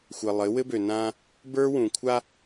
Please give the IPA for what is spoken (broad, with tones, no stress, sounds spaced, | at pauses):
xʷ ɘ˨ lˠ ɘ˨˦ w ɘ˦ b ø˨ n ãː˦ | b ə˞˦ w ũ˨ kʷʰ a˦